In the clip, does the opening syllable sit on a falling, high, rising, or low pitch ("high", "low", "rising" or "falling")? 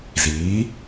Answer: rising